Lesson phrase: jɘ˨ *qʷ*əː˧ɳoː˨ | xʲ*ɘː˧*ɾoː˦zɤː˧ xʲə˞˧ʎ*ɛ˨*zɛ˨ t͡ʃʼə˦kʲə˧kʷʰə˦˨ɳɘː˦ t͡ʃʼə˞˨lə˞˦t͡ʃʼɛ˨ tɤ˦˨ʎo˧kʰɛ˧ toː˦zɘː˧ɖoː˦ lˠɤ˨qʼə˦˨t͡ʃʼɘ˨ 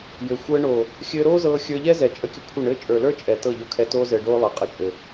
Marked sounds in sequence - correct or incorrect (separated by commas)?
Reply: incorrect, correct, incorrect